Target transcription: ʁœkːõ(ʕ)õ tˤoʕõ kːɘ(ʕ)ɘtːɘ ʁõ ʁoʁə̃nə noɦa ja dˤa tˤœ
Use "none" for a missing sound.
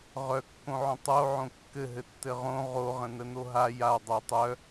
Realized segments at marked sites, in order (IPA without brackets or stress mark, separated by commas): ʕ, ɦ